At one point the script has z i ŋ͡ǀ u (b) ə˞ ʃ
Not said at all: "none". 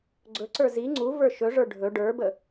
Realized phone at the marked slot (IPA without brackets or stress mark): v